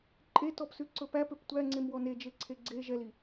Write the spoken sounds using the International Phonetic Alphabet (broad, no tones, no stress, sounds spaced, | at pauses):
ǃʼ e t ɔ p s ʉ ǀ ɵ p æ p ø p tʷ æ ŋ͡ǀ e m w ɔ n e d͡ʒ e ǀʰ e ɡ͡ǀ e ʒ ɛ l i